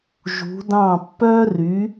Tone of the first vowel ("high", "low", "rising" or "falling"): rising